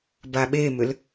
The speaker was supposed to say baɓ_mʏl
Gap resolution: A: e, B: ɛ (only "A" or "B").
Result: A